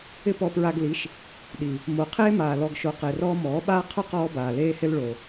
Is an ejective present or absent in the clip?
absent